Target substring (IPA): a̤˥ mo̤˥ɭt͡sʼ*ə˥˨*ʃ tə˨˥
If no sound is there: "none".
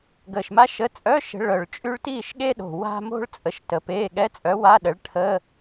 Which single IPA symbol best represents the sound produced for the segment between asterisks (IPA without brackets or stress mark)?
ə˨˩